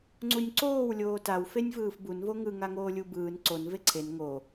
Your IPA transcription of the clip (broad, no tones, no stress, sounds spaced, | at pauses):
ŋ͡ǀ u nʲ ǀ oː w lʲ oː t a w f e nʲ v ɯː f b u n v o ŋ ɯ ŋ a ŋ oː lʲ u b ɯː n ǀ o n v e ǀʰ e n ŋ o